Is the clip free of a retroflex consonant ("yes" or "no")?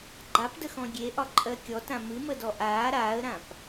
yes